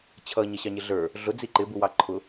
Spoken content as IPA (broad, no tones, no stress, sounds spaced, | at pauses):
t͡ɕʰ ʌ ɲ ʌ ɕ ɑ ɲ ɪ ɮ ə˞ | ɮ ʊ d͡z i ǃ ɪ b u w ɑ ǃʰ ʊ